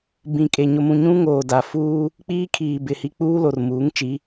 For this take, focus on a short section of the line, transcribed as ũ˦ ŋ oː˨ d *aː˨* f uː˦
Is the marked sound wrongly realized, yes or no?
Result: yes